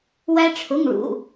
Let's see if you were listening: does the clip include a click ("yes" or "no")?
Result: no